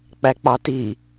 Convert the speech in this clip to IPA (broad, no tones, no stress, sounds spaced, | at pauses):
k͡p æ k͡p ɑ t i